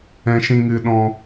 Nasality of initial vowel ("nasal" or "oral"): nasal